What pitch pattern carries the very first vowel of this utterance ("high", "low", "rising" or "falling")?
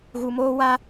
low